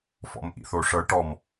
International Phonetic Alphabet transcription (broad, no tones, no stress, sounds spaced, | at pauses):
f ɔ̰ m ʔ ḭ θ o ʂ ɤ ʈ ɔ m